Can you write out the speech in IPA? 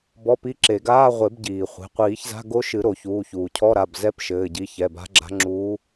b ɔ˧˥˧ p i˧˥˧ ǁ e˨˩˦ ɡ aː˧˥˧ ʁʷ e˨˩˦ b ɟ iː˩ χʷ e̤˩˧˩ qʷ iː˨˩˦ ç z a̤˧˥˧ ɡ o˧˥ ʃ ɨ˨˩˦ ɾ o˨˩˦ ç uː˩˧˩ ç uː˩ cʰ ɔ˧˥˧ ɾ a˩˧˩ b z ɛ˧˥˧ p ʃ ɘː˩˧˩ ɟ i˩˧˩ ç ɛ˩˧˩ b a̤˧˥ ɡ͡ǁ a̤˧˥ ŋ͡ǁ uː˧˥

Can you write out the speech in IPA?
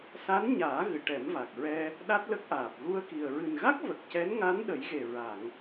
s a˧˥ n ɲ aː˨˩˦ ɣ ɨ˨˩˨ ʈ ɛ˨˩˦ m v a˨˩ k̚ ɹ ɛ˧ | ɗ a˦˥ t̚ l ə˦˥ k̚ ʔ aː˨˩ p̚ ɣ u˧ ə̯ k i˨˩ ə̯ ɹ ɨ˨˩ n ɣ a˦˥ k̚ v ə˨˩ k̚ c ɛ˧˥ n ŋ a˧˥ n ɗ ə˨˩˦ j ɣ e˨˩ ɹ a˨˩˨ ŋ

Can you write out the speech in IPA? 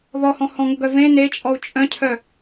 ð ɔ h ɔ̃ h ɔ̃ ŋ ʊ ɡ œ v ẽ n e t͡ʃʼ ɔ u̯ t͡ʃʼ œ̃ cʰ œ

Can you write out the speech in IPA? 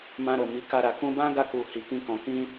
m ã˧ ɾ o˨ m i˨˦ k a˧ ɾ a˨ k ũ˧ b ã˦ ɡ a˧ k u˨ h i˨ k ĩ˧ k ɔ̃˨ k ĩ˧

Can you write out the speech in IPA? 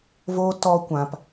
v o˦ t ɔ˦ kʷ ã˧ p

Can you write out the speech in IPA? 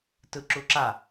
t ɯ ǁ u ǁ a

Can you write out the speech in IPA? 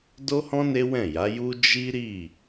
d o˦ h ɔ̃˦ n e˦ w ɛ̃˦˨ j a˨˦ j u˦ d͡ʒ i˦ ɾ i˦˨

